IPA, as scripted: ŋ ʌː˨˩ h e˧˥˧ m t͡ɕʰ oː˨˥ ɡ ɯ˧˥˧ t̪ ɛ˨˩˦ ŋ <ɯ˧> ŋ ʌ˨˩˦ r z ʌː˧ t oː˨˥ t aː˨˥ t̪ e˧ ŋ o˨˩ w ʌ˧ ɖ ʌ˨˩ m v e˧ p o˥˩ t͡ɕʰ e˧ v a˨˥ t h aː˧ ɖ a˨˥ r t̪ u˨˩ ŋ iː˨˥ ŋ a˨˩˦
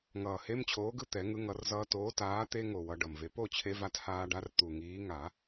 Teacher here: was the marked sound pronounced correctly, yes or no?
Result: yes